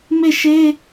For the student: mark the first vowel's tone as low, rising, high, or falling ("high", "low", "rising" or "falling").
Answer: falling